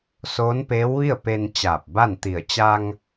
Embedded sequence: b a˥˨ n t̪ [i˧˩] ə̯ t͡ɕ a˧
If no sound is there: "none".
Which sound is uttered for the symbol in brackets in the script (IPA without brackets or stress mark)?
i˧˩